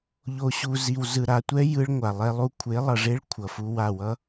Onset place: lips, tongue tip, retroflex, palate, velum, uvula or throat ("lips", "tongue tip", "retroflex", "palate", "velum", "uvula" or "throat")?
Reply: palate